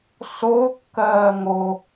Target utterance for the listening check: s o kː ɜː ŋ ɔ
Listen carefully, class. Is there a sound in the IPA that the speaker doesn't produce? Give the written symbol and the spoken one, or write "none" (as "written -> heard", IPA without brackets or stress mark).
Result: ɔ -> o